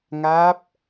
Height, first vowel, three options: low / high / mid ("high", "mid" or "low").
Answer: low